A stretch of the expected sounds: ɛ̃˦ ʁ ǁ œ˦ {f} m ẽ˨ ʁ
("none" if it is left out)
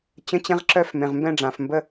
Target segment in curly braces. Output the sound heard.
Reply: f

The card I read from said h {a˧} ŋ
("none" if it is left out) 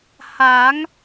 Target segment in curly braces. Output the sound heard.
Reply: a˩˦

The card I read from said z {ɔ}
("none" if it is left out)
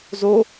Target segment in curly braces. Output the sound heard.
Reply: o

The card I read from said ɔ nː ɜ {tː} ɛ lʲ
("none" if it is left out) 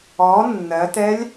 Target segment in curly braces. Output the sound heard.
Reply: t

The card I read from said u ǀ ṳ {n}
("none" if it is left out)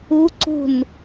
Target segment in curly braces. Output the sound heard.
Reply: n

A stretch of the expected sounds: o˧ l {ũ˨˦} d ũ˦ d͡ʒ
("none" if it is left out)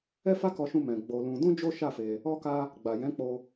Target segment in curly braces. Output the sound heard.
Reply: ũ˧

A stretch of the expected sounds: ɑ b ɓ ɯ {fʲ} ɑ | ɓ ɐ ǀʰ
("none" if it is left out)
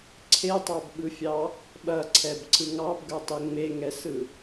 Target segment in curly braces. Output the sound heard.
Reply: fʲ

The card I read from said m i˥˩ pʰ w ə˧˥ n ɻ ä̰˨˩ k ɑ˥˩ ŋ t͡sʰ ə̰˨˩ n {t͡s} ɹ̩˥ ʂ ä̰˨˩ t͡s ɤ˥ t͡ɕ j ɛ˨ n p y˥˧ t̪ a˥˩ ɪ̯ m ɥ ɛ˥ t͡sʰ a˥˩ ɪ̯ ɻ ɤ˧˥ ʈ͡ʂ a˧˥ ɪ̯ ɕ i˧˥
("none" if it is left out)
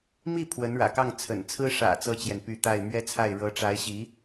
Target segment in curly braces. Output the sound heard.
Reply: t͡sʰ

